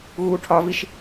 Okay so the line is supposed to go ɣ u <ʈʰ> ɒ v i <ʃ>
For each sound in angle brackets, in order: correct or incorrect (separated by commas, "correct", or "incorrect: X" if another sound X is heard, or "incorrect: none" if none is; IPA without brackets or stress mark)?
correct, correct